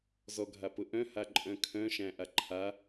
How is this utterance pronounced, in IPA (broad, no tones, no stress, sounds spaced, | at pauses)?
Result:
z ɔ ɡʱ a p ʊ ʔ œ̃ h a ǃʼ œ̃ kʰ œ̃ ʃ æ̃ ʔ a ǃʰ a